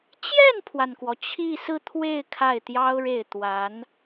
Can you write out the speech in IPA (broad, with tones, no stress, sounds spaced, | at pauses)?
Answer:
t͡ɕ j ɛ˥˩ n pʰ w a˩ n k w ɔ˩ t͡ɕʰ i˥˧ s ɹ̩˥˧ t̪ʰ w e˥˧ ɪ̯ kʰ a˥˩ ɪ̯ t̪ j ɑ˥ ʊ̯ ɻ e˥˩ ɪ̯ t̪ w a˧˥ n